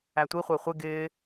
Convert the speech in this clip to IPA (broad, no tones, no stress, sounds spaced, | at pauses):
æ tʷ i χʷ ɪː χʷ ɪ ɡ ɪː